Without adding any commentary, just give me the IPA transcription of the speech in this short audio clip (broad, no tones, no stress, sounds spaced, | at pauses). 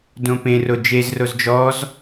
d õ p ẽ r o d͡ʒ e z r o z d͡ʒ ɔ z